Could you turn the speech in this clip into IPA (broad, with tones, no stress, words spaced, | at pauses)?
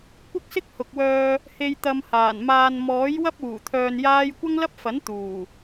kʷɪ˥k̚sɪ˥k̚ hʊ˨k̚wœː˧ | he˨j t̪ɐ˧mhaː˨˩nmaː˧n mɔː˨˥jwɐ˥p̚ uː˨˩ t̪ʰœː˧njaː˥j kʷɐ˥ŋlɐ˥p̚fɐ˨˥n t̪uː˨˩